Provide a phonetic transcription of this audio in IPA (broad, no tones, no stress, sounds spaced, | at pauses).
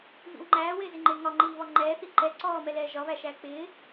v ḭ w ŋ͡ǃ æː w ɪː z ɪ ŋ͡ǃ ɪː ŋ ɒ ŋ͡ǃ iː β ɒ ŋ͡ǃ ɛː θ i ǃ ɛ ǀ ɔː m ɛ l ɛː ʒ ɒ β æ ʃ æː k͡p ɪː